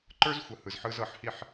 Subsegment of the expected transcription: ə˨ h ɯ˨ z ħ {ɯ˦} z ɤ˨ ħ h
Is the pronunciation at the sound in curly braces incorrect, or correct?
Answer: incorrect